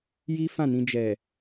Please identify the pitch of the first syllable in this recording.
high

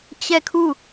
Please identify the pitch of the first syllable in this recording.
falling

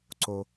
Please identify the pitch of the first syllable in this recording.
low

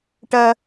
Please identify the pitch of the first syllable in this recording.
high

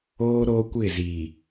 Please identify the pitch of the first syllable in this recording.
high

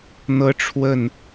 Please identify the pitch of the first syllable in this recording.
high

